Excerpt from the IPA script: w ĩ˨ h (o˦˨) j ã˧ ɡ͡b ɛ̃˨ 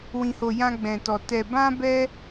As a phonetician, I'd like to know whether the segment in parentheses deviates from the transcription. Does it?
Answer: yes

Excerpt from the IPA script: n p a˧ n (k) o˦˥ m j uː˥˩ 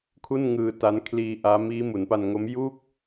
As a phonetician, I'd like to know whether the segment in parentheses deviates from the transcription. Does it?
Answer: yes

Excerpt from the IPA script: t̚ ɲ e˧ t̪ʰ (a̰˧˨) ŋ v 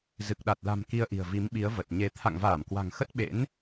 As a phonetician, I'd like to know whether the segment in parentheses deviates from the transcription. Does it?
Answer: no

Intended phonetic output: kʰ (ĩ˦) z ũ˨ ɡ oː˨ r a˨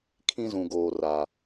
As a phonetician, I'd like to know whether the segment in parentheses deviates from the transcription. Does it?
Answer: no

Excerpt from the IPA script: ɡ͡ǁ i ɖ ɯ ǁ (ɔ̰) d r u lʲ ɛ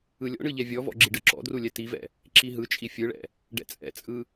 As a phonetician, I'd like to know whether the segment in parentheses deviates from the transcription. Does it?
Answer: no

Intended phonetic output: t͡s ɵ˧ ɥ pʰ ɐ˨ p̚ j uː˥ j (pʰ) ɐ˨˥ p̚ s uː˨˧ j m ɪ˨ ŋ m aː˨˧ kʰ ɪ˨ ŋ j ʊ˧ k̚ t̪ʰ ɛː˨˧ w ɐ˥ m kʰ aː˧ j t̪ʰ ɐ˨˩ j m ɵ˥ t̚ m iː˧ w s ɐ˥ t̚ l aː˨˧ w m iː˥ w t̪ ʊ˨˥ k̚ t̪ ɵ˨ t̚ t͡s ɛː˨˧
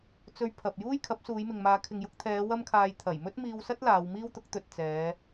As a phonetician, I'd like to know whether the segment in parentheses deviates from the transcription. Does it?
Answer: yes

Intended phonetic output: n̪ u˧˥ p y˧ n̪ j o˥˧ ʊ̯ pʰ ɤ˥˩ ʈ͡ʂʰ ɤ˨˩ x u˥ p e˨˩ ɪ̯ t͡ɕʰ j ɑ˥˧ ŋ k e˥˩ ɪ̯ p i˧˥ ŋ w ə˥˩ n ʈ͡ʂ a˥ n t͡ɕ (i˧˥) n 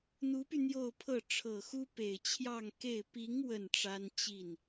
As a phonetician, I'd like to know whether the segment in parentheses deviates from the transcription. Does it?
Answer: yes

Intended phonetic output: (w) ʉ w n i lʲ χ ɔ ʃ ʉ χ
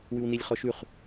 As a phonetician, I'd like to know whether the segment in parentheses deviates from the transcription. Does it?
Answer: no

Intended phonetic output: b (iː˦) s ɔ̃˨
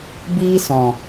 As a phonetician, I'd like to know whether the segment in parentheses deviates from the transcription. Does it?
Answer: no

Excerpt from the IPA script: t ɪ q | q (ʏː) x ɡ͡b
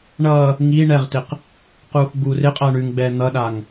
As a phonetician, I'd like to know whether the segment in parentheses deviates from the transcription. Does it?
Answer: yes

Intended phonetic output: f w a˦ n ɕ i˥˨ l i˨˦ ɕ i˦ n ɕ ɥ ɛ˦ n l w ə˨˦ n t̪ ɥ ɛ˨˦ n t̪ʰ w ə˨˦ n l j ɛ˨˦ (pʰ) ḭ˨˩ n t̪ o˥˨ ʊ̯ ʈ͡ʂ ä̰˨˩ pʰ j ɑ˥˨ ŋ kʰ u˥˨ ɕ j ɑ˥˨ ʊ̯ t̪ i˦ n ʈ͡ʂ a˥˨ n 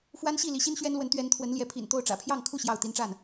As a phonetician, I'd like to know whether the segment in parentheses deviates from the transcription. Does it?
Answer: no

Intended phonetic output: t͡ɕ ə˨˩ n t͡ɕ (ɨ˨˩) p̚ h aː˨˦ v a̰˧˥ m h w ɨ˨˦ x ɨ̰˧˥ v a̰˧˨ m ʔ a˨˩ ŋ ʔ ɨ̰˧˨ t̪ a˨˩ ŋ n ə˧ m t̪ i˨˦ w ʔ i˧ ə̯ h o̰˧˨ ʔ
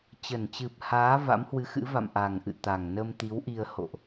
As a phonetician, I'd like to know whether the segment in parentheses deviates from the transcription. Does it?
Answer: no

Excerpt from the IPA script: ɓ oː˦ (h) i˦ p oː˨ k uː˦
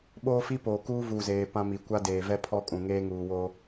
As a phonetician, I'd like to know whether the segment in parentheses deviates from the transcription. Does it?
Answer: yes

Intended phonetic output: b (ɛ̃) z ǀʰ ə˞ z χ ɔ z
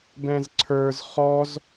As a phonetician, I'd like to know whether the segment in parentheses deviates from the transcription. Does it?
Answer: no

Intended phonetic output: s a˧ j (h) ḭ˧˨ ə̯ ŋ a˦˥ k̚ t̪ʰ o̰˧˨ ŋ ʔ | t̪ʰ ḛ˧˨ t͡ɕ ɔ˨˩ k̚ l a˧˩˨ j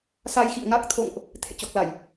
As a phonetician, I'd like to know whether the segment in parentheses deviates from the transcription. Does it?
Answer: yes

